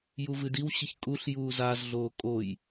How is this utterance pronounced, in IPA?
j u v ɨ d i w ɕ i ç kʼ u ɬ j uː z a z ɮ oː kʼ o j

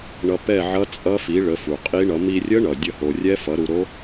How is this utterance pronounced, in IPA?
ɳ ʌ˧ p ɛ˥˨ ʕ ʌ˦˥ t͡sʼ ʌ˦˥ f i˨˥ ɭ ə˨˥ f u˨˩ qʼ i˦˥ ɳ ʌ˨˥ m i˧ rʲ ə˦˥ ɳ ʌ˨˩ dʲ ə˥˨ h o˧ rʲ ɛ˦˥ f ʌ˨˥ ɾ u˧ ɾ o˦˥

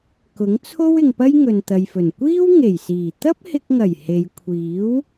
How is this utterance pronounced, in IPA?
k ʊ˨˥ ŋ t͡sʰ o˥ w ɪ˨ ŋ p ɐ˥ j ŋ ɵ˨ n t̪ ɐ˨ j f ɵ˨˩ n kʷ iː˥ w ŋ e˨˩ j s iː˨˩ t̪ ɐ˥ p̚ h ɪ˧ k̚ ŋ ɐ˨˩ j h e˨˧ j kʷʰ iː˨˥ w

